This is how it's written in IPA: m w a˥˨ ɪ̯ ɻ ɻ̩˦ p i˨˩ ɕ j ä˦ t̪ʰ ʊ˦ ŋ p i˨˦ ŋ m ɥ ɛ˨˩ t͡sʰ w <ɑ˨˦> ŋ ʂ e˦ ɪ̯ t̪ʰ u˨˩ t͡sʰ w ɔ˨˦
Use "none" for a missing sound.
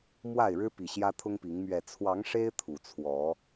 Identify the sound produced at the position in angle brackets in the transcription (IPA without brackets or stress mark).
ɑ˨˦